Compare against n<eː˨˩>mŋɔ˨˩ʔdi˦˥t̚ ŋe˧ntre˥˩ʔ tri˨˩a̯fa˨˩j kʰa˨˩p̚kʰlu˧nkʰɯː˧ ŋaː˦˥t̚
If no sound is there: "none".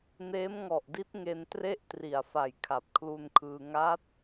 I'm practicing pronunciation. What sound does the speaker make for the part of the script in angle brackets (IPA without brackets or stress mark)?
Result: eː˦˥